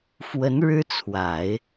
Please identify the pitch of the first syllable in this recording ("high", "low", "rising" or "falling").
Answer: rising